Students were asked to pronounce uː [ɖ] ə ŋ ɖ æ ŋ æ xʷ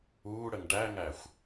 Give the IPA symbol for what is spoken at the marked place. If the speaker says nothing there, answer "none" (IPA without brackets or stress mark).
ɽ